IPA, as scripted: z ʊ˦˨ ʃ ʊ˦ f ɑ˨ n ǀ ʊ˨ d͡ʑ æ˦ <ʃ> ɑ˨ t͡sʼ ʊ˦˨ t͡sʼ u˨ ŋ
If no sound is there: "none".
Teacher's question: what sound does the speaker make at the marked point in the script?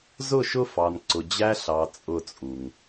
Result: ɬ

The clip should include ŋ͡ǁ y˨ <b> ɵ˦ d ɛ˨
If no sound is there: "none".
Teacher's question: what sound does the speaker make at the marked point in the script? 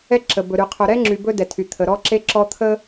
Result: b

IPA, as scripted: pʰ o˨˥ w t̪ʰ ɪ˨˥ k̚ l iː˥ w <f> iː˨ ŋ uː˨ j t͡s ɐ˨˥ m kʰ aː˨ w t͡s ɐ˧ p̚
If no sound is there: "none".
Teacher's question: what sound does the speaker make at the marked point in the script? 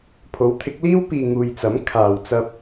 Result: p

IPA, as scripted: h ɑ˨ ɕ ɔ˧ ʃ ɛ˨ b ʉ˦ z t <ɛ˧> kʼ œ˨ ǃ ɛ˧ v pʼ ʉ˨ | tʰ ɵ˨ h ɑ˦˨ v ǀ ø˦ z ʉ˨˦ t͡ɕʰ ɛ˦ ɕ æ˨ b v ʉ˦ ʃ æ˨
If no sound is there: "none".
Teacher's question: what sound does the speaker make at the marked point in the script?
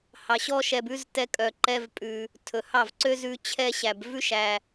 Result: ɛ˧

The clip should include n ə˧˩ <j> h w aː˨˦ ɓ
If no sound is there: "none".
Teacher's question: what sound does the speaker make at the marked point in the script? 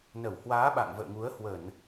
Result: w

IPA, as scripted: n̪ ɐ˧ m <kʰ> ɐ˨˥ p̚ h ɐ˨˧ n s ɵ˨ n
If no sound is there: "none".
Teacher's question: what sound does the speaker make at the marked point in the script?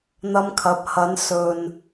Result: kʰ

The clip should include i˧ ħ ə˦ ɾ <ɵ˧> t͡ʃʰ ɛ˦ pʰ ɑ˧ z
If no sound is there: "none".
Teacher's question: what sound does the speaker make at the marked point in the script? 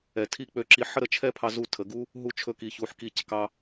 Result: ə˧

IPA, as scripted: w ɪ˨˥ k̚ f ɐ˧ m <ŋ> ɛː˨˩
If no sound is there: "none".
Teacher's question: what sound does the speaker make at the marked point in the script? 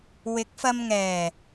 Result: ŋ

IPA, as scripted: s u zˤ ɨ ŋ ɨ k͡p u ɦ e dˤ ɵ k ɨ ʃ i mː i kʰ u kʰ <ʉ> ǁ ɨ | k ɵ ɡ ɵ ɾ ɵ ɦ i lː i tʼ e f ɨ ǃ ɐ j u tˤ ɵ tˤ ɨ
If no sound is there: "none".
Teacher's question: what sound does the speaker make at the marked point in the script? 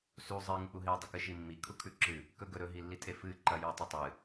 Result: ʉ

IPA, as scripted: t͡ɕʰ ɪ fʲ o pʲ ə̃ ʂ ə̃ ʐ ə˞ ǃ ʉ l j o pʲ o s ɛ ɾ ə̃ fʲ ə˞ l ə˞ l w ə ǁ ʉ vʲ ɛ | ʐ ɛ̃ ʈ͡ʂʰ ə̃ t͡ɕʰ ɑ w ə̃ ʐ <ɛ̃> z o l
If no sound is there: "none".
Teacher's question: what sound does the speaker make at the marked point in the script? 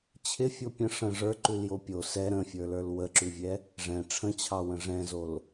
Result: ɛ̃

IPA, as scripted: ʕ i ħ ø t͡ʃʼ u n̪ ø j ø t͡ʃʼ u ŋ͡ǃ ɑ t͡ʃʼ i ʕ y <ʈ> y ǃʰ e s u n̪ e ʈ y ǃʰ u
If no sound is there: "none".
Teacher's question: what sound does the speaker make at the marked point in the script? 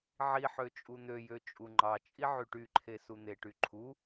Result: ʈ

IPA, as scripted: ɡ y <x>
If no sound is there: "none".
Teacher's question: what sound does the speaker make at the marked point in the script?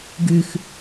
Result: x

